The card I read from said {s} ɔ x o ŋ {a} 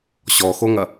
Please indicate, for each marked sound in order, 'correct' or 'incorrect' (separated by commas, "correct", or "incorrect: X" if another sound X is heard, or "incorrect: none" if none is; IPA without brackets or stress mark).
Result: incorrect: ɕ, incorrect: ɐ